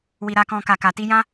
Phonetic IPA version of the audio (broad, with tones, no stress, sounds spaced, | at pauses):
w i˨ ɾ a˨ k ɔ̃˨ k a˨ k a˨ t i˧ j ã˦